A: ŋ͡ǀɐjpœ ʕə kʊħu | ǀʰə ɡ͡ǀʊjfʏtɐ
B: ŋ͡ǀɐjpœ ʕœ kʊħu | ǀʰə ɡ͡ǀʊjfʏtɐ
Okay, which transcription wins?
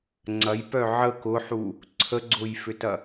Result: A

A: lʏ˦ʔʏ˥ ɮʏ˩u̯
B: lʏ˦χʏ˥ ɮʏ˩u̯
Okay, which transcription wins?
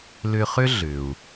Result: B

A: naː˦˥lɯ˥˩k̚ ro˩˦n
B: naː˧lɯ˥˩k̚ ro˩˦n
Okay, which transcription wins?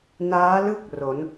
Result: A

